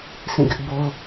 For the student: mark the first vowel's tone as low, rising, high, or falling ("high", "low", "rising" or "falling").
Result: falling